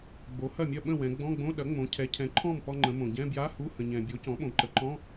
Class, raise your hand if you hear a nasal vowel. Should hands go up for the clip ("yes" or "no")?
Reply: yes